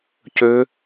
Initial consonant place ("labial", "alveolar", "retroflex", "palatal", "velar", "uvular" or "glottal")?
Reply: palatal